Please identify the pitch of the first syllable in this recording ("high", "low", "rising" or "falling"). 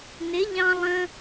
rising